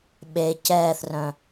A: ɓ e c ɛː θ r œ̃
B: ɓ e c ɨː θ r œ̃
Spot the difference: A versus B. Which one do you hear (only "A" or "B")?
A